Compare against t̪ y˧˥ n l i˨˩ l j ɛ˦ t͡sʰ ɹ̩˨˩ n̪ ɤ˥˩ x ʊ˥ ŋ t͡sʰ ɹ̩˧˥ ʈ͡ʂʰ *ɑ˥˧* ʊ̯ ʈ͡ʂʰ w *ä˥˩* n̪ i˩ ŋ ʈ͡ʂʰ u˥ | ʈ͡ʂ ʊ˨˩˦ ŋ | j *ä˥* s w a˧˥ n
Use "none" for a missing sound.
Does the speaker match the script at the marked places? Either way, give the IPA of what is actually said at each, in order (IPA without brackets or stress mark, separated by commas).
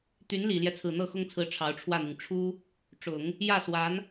ɑ˧˥, ä˥˩, ä˥˩